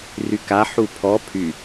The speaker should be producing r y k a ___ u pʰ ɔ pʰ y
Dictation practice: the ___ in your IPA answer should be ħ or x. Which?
ħ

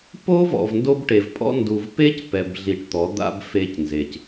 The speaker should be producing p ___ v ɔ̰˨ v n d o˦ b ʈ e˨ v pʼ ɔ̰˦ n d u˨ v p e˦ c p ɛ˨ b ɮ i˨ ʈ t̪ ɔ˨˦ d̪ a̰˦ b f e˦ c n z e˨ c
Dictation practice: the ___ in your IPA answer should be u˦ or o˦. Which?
o˦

